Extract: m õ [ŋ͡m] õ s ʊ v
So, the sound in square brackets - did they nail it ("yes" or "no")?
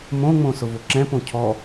yes